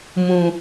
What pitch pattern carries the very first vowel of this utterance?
low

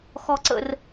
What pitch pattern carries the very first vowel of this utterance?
high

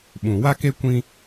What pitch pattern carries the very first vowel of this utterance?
low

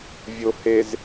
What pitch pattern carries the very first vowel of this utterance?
low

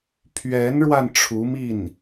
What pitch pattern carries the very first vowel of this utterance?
rising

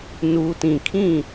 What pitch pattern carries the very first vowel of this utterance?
low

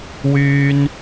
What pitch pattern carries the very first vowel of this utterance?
high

